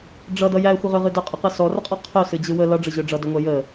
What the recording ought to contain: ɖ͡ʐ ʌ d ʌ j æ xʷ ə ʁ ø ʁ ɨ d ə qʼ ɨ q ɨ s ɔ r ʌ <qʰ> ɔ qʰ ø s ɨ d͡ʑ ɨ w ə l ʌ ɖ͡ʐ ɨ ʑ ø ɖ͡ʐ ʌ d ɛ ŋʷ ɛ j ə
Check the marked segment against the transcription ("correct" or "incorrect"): incorrect